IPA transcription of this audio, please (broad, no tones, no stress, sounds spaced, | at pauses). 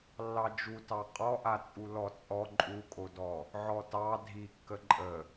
lː ɑ d͡ʒ u t ɑ qʼ ɔ ʔ a t͡sʼ u l ɔ t͡sʼ ɔ ǃʼ u kʼ o d ɔ | ʕ ɔ t ɑ dʱ i kː ə ǃʼ ə